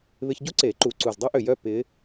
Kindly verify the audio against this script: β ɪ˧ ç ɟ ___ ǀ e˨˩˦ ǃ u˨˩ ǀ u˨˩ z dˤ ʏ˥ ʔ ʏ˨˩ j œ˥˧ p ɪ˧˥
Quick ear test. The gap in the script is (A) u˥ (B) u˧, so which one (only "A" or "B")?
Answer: A